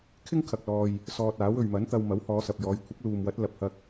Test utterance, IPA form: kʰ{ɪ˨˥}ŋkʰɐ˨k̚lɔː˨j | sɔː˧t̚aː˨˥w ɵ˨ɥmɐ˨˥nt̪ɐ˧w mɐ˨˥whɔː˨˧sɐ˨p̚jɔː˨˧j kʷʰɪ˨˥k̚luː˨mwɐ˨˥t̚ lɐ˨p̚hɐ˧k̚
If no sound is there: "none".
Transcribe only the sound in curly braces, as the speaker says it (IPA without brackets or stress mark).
ɪ˥